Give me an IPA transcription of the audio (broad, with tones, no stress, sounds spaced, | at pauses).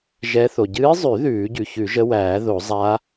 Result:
ʒ ɛ˧˥ θ o˩ ɟ ɨː˧˥ zˤ ʉ˨˩˦ ð ʉː˨˩˦ ɟ ʉ˩ ç ʉ˨˩˦ ʒ ə˧˥ w æː˨˩˦ ð o˨˩˦ zˤ a˧˥